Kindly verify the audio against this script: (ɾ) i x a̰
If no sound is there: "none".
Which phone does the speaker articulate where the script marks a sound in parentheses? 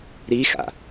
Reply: ɾ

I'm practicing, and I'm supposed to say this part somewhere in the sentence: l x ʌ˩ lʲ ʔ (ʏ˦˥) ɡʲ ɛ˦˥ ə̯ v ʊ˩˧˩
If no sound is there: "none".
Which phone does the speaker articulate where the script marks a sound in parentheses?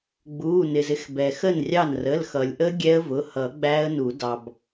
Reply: ə˦˥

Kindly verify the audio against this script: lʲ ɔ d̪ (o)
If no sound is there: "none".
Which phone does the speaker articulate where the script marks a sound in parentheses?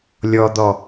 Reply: ɔ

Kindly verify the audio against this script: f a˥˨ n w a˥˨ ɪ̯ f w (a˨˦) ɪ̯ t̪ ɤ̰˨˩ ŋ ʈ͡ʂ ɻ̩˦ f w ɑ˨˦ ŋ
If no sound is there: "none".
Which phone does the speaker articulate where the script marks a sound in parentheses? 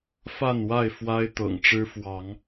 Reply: a˦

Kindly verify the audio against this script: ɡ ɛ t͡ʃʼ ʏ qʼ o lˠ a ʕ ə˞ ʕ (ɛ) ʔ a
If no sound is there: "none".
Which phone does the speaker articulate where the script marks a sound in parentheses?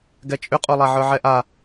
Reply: ɛ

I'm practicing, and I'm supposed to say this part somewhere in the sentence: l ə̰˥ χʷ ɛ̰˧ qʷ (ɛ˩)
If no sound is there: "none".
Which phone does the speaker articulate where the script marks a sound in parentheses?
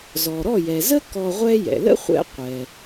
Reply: ɛ˩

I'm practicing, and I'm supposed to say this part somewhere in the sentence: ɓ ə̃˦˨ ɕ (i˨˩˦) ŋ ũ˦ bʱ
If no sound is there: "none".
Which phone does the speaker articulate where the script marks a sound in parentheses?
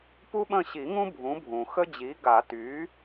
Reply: i˨˩˦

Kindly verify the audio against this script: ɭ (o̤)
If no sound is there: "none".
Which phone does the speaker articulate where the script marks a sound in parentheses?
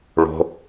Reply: o̤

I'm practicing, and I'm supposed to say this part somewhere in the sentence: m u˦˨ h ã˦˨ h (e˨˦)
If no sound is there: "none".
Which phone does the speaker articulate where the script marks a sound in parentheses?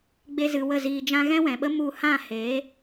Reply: e˨˦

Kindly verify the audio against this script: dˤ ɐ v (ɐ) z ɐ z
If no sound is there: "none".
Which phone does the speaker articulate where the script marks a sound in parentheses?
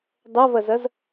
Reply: ɐ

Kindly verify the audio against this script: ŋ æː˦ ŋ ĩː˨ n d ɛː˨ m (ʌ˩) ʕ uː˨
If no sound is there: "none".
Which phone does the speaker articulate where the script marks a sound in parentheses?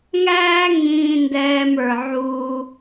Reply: ə˞˩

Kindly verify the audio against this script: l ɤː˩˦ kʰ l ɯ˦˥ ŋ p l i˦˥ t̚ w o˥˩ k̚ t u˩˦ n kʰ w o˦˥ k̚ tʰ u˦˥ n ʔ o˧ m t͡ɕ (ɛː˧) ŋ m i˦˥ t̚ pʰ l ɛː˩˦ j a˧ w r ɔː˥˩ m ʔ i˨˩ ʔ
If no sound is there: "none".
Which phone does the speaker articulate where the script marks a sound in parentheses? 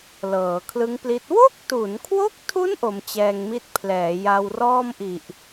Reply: ɛː˧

